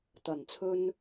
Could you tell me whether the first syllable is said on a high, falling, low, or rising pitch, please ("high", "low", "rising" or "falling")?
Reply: low